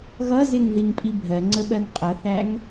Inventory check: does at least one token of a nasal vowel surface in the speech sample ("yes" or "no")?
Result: no